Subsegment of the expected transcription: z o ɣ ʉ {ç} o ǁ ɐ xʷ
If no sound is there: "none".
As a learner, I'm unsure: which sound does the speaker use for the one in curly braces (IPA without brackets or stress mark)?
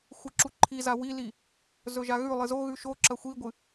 ʃ